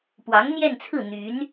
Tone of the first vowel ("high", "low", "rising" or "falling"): rising